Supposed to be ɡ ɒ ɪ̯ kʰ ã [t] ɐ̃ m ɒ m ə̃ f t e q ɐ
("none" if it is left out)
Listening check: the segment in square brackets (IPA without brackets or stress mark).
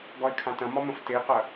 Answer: t